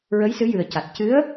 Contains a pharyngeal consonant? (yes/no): no